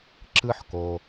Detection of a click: present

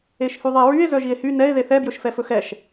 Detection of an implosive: absent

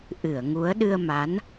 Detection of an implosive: present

